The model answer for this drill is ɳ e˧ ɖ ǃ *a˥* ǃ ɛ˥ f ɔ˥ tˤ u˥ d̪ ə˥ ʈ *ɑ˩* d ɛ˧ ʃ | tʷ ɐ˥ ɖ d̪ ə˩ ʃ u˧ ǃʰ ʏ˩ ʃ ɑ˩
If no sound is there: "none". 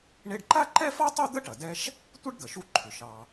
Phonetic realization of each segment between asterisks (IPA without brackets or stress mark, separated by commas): a˥, ɐ˩